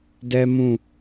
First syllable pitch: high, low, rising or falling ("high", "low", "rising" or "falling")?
high